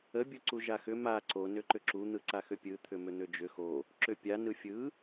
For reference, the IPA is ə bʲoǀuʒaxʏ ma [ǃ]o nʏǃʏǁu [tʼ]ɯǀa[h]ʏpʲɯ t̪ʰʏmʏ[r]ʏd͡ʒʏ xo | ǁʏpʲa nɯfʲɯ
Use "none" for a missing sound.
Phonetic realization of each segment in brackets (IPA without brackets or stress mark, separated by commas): ǀ, n̪, x, n̪